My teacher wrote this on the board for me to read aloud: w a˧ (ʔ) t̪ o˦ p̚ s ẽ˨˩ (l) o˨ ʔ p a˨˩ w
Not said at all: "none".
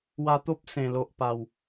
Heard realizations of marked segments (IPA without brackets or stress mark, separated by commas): none, l